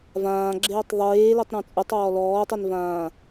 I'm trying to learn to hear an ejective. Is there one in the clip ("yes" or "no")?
yes